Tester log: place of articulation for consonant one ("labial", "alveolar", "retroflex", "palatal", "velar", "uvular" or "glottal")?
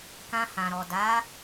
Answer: velar